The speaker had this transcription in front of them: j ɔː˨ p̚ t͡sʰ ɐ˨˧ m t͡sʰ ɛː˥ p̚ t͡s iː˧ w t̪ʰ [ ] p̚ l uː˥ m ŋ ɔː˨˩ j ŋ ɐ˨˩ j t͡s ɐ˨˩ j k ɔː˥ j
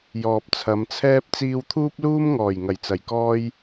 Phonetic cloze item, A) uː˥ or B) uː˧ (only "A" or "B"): A